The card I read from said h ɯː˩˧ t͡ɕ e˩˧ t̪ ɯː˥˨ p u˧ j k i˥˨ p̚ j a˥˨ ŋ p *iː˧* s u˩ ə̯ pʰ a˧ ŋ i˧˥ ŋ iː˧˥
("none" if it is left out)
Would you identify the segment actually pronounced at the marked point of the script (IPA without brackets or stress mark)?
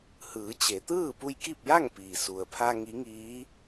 iː˩